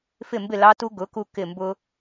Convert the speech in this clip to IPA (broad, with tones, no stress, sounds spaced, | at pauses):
f ɪ˥˩ m b ɪ˥˩ l ɑ˦˥ t u˦˥ ɡ ʊ˩˥ k u˧ k ɪ˧˩ m b ʊ˧